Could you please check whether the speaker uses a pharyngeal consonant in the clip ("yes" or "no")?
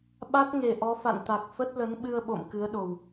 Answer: no